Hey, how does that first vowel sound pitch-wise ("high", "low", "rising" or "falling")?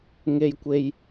high